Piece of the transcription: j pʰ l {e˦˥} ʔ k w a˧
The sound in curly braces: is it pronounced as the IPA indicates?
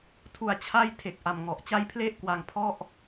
yes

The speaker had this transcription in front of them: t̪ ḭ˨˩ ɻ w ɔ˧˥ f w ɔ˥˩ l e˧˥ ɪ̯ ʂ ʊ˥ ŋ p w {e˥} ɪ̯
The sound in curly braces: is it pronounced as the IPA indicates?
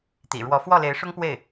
no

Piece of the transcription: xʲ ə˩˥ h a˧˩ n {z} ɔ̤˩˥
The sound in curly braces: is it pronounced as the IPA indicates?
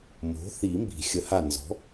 yes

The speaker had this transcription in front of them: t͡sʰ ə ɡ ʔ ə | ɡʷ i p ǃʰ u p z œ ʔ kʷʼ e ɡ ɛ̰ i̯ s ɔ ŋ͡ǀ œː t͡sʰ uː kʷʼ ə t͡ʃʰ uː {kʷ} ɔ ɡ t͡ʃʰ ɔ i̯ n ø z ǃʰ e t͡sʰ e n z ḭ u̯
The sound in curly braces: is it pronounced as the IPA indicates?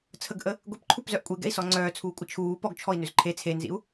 no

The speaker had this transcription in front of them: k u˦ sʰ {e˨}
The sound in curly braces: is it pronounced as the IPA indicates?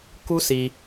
no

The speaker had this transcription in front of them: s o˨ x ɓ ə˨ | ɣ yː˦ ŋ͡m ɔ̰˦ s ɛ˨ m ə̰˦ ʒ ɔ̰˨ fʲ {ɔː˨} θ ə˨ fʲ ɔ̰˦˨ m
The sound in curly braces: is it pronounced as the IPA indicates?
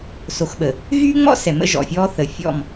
no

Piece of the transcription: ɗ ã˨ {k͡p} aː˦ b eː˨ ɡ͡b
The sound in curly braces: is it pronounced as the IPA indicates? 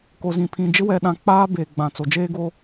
yes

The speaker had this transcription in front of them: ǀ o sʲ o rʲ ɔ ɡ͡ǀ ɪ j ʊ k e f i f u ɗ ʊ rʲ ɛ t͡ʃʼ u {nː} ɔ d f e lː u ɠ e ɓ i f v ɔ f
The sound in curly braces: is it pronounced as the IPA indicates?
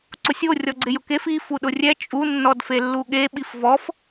yes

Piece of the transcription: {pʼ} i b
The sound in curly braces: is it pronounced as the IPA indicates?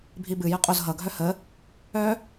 no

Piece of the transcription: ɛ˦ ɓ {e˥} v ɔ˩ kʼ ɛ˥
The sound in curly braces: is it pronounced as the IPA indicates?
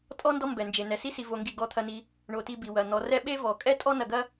yes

